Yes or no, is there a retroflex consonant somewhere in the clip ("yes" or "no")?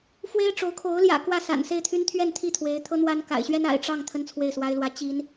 yes